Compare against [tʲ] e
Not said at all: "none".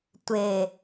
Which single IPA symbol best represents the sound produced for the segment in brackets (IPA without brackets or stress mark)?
tʷ